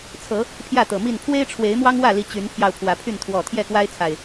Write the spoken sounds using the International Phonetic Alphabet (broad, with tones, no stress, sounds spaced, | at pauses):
t͡sʰ ɤ˨˦ | pʰ j ä˥˨ t̪ ɤ˨˩ m i˥˨ n pʰ w e˦ ɪ̯ ʈ͡ʂʰ w e˨˦ ɪ̯ m w ɑ˦ ŋ w ä˥˨ l i˨˦ t͡ɕ y˨˦ n pʰ j ɑ˧ ʊ̯ pʰ w ä˨˦ pʰ y˥˨ n t̪ʰ w ɔ˥˨ t̪ʰ j ɛ˥˨ k w a˦ ɪ̯ t͡sʰ a˨˩ ɪ̯